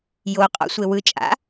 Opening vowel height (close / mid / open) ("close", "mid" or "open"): mid